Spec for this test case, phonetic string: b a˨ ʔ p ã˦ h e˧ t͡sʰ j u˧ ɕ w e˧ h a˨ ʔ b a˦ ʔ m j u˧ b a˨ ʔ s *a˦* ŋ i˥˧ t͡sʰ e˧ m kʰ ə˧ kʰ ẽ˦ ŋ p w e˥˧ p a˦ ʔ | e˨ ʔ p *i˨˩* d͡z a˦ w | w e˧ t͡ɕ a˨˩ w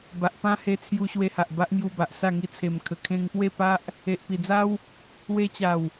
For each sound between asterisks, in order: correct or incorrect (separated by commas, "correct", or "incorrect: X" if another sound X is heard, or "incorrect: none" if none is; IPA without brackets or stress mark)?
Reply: incorrect: a˥˧, correct